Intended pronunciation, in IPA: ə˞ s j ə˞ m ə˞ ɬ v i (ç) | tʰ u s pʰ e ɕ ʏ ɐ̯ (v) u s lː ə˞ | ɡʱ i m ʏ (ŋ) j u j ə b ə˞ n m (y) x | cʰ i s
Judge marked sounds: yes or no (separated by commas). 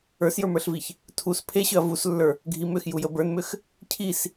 yes, yes, no, no